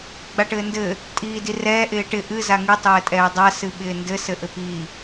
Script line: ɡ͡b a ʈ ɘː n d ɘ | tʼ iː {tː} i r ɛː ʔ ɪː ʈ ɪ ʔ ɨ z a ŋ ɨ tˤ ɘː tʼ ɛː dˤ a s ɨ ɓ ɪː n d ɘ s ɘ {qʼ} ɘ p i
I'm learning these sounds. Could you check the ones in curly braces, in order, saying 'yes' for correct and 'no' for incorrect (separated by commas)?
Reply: no, no